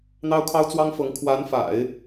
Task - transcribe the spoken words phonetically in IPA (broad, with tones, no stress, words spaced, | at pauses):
n̪ɑ˥ʊ̯kʰɑ˥ʊ̯t͡swɑ˥ŋfɤ˧˥ŋ kʰwa˧˥nfa̰˨˩˦ɪ̯